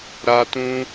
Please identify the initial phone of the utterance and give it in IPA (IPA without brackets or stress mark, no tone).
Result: ɾ